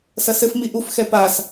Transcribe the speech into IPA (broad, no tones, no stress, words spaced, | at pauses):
sɐsɘf miʔuf xɛpas